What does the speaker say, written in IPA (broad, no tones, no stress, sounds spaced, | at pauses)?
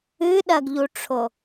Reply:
ɨ ɗ ɐ ɡ ʎ u ʈ͡ʂʰ o